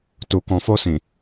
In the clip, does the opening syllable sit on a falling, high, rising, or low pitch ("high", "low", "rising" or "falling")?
low